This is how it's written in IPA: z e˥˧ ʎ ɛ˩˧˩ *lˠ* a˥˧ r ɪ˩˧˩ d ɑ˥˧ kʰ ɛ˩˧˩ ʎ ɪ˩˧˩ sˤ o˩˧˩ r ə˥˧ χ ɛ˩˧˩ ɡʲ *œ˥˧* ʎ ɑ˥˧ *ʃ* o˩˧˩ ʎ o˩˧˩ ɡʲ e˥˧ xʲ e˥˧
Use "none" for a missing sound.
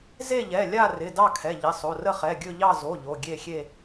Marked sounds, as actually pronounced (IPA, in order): lʲ, ɵ˥˧, z

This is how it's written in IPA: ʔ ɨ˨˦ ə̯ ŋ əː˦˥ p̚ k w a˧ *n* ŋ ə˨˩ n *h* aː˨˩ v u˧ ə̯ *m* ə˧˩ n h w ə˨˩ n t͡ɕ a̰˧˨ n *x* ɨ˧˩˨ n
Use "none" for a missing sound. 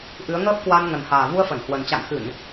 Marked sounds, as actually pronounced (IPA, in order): n, h, f, x

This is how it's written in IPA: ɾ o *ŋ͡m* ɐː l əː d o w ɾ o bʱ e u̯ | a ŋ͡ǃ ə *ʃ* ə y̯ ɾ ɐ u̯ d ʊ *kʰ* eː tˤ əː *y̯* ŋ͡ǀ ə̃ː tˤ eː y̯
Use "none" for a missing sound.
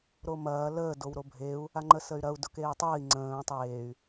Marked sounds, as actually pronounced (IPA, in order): m, s, k, i̯

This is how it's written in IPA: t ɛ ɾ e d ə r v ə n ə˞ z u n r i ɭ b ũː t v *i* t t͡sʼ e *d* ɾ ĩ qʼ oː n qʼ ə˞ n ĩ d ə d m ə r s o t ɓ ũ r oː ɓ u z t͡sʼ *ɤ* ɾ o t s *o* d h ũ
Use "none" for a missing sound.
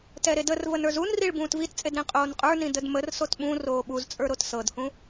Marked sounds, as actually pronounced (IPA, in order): i, d, ə˞, ɤ

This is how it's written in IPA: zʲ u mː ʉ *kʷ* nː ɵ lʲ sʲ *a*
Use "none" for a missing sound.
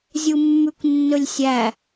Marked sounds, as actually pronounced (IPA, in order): kʷ, æ

